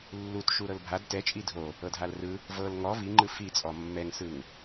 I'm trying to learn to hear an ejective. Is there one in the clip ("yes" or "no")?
yes